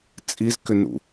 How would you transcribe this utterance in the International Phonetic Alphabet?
t͡sʼizkʏnṵ

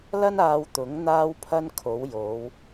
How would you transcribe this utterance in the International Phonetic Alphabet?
lɐ˥naː˧wt̪ʊ˨˥ŋ n̪aː˥wpʰɐ˥nkʰo˨˥w jo˨˧w

